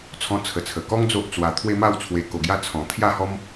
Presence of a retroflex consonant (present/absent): absent